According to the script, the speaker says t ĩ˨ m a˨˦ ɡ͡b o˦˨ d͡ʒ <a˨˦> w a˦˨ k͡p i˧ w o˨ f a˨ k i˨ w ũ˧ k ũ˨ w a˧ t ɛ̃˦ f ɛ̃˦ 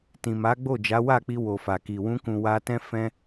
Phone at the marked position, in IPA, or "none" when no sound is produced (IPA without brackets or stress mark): a˨˦